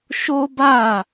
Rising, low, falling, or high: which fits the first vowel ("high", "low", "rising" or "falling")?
high